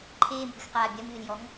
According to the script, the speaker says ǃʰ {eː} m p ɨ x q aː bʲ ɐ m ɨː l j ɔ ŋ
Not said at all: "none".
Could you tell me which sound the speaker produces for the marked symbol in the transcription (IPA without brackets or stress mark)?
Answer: eː